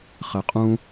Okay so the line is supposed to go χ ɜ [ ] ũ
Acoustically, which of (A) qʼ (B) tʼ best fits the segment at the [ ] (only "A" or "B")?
A